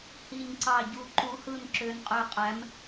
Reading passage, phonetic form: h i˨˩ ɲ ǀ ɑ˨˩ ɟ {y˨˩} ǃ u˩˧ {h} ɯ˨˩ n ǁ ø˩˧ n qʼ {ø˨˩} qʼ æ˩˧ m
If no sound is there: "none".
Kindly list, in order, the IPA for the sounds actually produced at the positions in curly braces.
u˨˩, h, ø˨˩

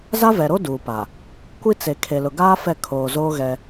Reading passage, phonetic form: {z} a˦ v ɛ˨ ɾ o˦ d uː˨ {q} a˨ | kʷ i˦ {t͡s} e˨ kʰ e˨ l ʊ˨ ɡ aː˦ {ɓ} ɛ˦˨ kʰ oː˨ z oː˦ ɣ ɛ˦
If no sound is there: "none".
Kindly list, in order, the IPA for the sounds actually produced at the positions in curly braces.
z, p, t͡s, f

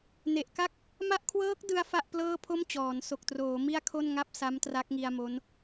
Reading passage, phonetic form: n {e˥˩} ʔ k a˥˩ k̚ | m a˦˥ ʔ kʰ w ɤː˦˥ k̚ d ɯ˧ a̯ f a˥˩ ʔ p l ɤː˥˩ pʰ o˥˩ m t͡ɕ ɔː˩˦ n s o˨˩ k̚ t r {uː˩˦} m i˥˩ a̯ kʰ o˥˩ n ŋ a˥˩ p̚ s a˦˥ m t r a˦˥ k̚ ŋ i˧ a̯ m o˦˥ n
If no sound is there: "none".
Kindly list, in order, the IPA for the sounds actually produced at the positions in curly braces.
e˨˩, oː˩˦

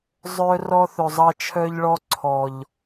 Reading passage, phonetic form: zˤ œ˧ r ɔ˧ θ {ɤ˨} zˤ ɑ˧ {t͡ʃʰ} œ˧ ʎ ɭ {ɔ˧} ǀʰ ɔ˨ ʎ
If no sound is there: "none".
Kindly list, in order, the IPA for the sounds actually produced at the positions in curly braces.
ɵ˨, t͡ʃʰ, ɔ˧

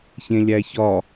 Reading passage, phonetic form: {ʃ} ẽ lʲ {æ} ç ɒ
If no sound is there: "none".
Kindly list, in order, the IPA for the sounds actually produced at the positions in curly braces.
ç, æ

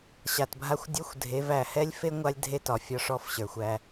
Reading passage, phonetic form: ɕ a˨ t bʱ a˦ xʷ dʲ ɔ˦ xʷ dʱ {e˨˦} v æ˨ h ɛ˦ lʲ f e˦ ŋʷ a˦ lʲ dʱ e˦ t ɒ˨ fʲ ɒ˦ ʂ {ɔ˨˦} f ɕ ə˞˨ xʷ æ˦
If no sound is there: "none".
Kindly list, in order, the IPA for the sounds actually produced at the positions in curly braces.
e˨˦, ɔ˦

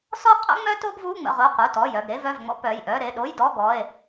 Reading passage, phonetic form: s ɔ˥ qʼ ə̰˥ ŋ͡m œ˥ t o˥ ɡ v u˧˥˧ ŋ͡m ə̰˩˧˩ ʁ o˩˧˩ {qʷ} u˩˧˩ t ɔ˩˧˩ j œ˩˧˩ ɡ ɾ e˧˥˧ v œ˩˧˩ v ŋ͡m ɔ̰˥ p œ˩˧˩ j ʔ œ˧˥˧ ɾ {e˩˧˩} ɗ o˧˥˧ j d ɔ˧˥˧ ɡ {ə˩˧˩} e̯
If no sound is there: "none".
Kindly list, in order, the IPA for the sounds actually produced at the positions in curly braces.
q, e˩˧˩, ɔ˩˧˩

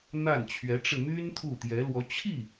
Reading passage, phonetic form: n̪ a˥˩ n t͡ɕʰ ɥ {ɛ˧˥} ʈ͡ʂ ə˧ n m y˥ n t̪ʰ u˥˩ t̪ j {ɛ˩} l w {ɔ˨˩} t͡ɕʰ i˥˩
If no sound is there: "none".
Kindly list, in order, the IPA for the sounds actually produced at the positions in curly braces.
ɛ˧˥, ɛ˧˥, ɔ˧˥

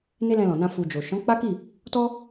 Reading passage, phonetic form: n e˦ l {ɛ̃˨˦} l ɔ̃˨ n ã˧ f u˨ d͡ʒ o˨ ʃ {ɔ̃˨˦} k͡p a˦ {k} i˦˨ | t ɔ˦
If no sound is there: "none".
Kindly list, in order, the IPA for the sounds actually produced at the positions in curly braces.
ɛ̃˧, ɔ̃˨˦, k

